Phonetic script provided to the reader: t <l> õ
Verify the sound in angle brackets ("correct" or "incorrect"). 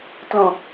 correct